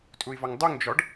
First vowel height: high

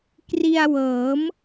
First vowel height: high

